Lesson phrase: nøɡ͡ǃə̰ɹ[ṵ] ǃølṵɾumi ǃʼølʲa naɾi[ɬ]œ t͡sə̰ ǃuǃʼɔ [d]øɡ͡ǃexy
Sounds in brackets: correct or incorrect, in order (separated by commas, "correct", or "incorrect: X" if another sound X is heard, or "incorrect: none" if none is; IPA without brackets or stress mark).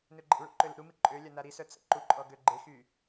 correct, incorrect: s, incorrect: ɡ